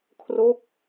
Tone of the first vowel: falling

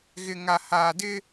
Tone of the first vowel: low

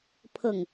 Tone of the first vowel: falling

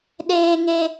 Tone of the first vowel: low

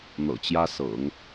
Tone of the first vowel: low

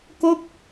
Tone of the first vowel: falling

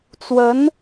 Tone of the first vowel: rising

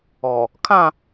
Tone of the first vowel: low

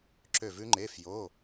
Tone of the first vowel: falling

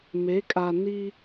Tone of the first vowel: rising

